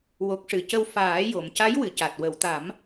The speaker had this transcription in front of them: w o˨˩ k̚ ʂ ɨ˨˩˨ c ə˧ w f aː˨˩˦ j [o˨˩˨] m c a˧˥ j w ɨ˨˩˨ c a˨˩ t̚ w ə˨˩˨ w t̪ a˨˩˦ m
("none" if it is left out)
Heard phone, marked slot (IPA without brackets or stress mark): o˨˩˨